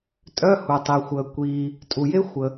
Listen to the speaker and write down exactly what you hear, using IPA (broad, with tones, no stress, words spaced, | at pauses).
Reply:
tʼœ˧˥˧hu˩tˤi˩xʷəː˩ kʷiː˩ | tʼu˩je˦˥ xʷə˩